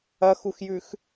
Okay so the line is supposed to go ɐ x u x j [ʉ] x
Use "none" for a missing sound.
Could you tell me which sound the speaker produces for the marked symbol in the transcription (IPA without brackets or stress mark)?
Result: ʉ